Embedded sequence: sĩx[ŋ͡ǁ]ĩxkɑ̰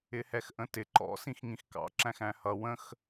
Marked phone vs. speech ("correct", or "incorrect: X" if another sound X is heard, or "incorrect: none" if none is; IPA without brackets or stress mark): incorrect: ŋ